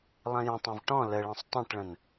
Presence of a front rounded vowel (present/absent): absent